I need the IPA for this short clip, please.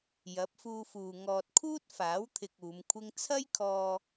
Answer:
jɐ˨˥p̚fuː˧fuː˨ ŋɔː˨t̚kʰuː˥t̚faː˨˥wt̪ʰɪ˨k̚ uː˨˧mkʷʰɪ˥ŋ t͡sʰɐ˥jkʰɔː˧

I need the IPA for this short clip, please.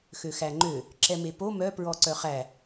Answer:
xøxæŋ͡ǃø | ǁɛmepo mœ pɹɔǀœχæ

